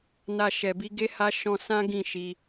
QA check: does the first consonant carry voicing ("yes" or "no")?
yes